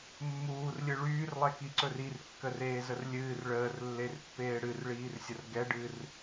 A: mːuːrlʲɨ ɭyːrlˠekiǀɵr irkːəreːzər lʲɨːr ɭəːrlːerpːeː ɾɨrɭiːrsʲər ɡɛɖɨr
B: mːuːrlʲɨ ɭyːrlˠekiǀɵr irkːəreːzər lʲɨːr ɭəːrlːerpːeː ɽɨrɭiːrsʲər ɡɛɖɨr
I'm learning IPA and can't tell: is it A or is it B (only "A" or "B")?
B